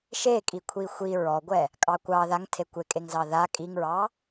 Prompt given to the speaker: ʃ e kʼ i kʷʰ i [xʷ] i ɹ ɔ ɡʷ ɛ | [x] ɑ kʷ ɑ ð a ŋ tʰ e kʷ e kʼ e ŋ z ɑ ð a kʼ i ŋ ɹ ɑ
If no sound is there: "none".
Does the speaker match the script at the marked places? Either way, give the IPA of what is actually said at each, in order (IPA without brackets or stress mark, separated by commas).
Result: xʷ, kʼ